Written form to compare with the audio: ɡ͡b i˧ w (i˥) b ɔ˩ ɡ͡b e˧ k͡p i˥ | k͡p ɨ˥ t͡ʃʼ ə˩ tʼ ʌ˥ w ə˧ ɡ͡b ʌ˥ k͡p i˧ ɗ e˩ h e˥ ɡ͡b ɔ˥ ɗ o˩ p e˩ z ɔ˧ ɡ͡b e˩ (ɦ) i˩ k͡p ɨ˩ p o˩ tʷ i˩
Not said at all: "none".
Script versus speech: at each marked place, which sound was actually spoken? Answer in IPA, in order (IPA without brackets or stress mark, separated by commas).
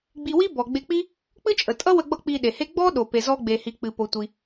i˥, h